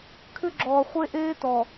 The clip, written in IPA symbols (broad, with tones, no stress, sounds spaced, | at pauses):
kʰ ʏ˦ ɡ͡ǁ ɔː˨ χʷ e˦ ʔ eː˦ t ɔ˨